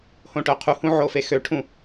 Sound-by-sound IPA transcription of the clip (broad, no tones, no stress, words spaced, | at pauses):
hõʈœqʰuhũ ʕofexøʈʰũ